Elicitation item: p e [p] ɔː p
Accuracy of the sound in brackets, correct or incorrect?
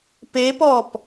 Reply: correct